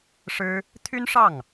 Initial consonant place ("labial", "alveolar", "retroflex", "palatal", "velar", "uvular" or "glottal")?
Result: retroflex